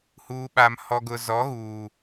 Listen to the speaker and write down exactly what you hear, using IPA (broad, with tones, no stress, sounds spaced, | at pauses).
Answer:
h uː˨ ɓ a˨ m h ɔ˨ ɡ ʊ˨ z ɔ˨˦ ɣ uː˨